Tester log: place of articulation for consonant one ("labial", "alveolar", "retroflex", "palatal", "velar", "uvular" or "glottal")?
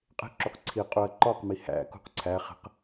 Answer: uvular